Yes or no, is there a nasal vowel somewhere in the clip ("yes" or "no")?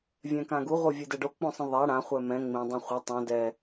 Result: yes